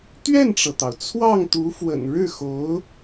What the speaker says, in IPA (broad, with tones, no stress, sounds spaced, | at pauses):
t̪ ɥ ɛ˥˩ n ʈ͡ʂ ɤ˩ t̪ ɑ˩ ʊ̯ t͡sʰ w ɑ˥˩ ŋ t̪ u˧˥ f w ə̰˨˩ n ɻ ɻ̩˥˩ x o˧˥ ʊ̯